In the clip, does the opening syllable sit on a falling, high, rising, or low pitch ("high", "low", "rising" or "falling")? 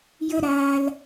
high